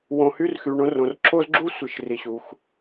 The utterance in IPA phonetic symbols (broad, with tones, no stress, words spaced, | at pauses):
wõ˨hy˦r xy˨ ɳõ˦ rõ˨rǁʰoː˥zɡ͡ǁuː˥ sʷɨ˨ʃ ri˨ɕuː˨x